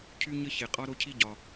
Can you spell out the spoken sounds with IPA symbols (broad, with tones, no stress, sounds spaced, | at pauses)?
cʰ y˦˥ ɲ ə˦˥ ç e˨˩ qʼ ɒ˦˥ ɾ o˦˥ cʰ i˦˥ ɟ ɒ˨˩